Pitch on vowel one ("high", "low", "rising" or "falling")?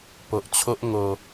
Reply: low